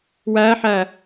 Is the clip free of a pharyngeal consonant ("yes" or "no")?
no